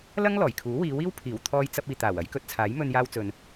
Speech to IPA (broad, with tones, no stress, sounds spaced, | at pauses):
l ɐ˥ ŋ l ɔː˨˩ j kʰ uː˨˥ w iː˨˧ w iː˥ w pʰ iː˨˩ w t̪ʰ ɔː˧ j t͡s ɐ˧ p̚ iː˨ t̪ aː˨˩ w ɐ˨˥ j k ɵ˨˥ t̚ t͡sʰ aː˨˥ j m ɵ˧ n j aː˧ w t͡s ɵ˨ n